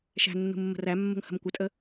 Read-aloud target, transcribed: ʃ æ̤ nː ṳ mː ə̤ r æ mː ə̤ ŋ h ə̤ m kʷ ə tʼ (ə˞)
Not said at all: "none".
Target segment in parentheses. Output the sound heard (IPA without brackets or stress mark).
ə